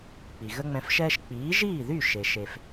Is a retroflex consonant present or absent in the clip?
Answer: absent